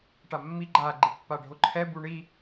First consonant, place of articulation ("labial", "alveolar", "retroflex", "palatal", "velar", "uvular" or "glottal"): retroflex